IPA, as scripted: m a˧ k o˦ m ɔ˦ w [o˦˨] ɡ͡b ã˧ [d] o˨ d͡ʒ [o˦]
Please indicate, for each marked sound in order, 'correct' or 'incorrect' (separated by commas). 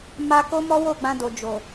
correct, correct, incorrect